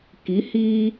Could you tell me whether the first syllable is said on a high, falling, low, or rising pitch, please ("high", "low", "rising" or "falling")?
rising